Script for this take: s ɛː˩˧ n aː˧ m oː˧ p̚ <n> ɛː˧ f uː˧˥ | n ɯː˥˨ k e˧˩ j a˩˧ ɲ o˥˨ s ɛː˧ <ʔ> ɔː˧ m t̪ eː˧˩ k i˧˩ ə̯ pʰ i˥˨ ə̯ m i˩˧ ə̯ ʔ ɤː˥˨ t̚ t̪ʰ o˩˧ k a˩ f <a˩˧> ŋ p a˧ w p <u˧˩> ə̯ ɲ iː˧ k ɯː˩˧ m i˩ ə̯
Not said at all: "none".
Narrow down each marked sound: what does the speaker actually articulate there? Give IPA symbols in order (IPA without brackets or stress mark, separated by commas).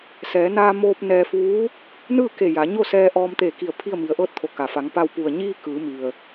n, ʔ, a˩˧, u˩